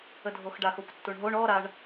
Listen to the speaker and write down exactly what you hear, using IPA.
ədʱoxɖax okʷtːuɳɦoɳ ɔ ɾaɳ

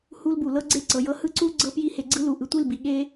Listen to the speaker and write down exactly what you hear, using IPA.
hu˦lbu˨ lɤ˦ ɡ͡ǀe˦˨ ǀɤ˨jɤ˦ hɯ˦ǀu˦ ɡ͡ǀɤ˦pji˦he˧ɡ͡ǀɯ˦ lu˨ʔɯ˨tʷi˦˨l bi˨ɠe˦

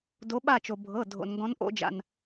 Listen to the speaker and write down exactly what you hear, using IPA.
do˨˦ɓa˦˨t͡ʃo˩ bʱɤ˩˧˩ dʱo̰˩nŋɡɔ̃˨˦n ʔo̰˨˦d͡ʒa̰˩n

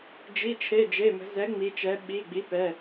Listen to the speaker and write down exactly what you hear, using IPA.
d͡ʒi˩˧˩t͡ʃʰe˩˧˩ d͡ʒe˩˧˩mə̤˩˧ zɛ˩˥ŋ͡mi˩˧t͡ʃɛ˩˧ ɓi˩˧˩ɡ͡bi˩˥pɛ˩˧˩

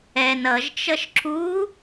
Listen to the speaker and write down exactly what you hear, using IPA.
ɛn ʌʒt͡ʃʌʃ ǁu

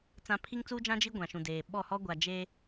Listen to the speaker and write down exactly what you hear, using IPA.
t͡sã˨ pʰi˦ŋt͡suː˦d͡ʒã˦ d͡ʒi˦ ɡʷã˨ʃũ˨deː˨ ɓɔ˦˨ hɔ˦ɡʷa˨ d͡ʒe˦

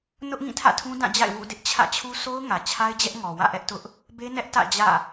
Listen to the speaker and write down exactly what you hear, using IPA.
nʊ˦ʔŋĩ˦˨ tʰä̰˦˨tʰũ˦dã˦˨d͡ʑa̰˦˨ɪ̯ wṵ˦˨dɪ˦ʔt͡ɕʰä̰˦˨t͡ɕʰu˦ so˦ʊ̯ŋä˨ t͡ɕʰa˦ɪ̯d͡ʑɛ˦ʔŋɔ˨ wä̰˦˨ʔɛ˦ʔtʊ˦ʔ | be˦nɛ˦ʔtä̰˦˨ d͡ʑä̰˦˨

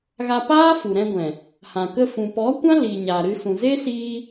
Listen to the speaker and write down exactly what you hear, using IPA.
ɣa˧ paː˦ fu˨ɾɛ̃˧ɡʷɛ̃˨ | hã˨kə˧ fũ˨pɔ˨˦kʷã˦ li˨ ɲa˨ɾɨ˧sũ˨ ze˦siː˧

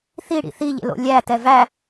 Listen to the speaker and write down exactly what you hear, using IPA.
θiɽḭ θiʎḛlo̰ lʲætɛ væ

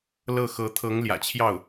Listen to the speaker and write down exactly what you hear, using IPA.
lɤ˥˩xɤ˧˥ t̪ʰɤ˧˥ŋljä̰˨˩t͡ɕʰjɑ˥˩ʊ̯

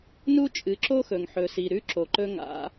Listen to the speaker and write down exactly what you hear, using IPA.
nu˦t͡ʃʼɨ˨˦ǁo˦xɵ˨ŋ ħɵ˨si˨ ɾʉ˦ǁo˨ǃɵ˦ŋa̰˨˦

